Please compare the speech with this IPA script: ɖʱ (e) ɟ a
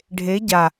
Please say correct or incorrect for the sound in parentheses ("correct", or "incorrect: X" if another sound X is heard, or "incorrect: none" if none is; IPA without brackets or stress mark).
correct